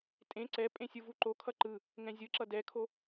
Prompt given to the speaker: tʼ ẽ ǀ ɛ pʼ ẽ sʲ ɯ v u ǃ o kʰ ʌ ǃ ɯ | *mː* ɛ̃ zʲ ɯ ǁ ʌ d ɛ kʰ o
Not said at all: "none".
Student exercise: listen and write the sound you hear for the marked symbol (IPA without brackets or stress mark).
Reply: ŋ